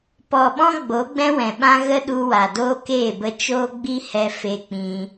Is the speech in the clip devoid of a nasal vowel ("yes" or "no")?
no